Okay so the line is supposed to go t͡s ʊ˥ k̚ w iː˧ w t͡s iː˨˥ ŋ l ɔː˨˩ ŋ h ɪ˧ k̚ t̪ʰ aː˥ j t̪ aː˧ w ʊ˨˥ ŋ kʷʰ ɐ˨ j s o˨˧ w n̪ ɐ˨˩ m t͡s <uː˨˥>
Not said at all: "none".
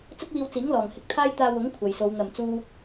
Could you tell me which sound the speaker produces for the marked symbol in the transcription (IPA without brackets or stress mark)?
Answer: uː˧